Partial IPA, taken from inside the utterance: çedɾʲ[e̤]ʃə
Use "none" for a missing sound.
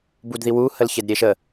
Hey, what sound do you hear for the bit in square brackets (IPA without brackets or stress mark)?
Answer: e